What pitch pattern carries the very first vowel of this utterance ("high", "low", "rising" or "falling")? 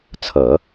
low